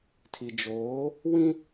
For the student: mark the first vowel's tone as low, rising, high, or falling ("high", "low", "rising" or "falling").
low